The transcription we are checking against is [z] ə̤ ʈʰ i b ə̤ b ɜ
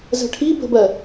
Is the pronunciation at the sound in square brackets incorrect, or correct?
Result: correct